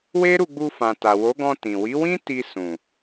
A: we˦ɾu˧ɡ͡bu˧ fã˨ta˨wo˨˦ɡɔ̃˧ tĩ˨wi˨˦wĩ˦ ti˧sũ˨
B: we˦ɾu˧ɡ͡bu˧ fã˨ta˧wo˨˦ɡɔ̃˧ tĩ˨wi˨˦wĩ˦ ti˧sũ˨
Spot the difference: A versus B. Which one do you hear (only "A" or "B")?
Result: A